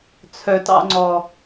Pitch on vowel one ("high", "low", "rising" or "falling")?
low